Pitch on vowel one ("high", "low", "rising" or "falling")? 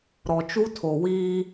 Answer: low